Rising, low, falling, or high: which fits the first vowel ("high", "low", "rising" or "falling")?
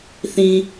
low